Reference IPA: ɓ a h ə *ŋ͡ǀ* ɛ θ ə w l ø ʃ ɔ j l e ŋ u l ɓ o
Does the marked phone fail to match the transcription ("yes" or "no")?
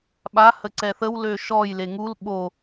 yes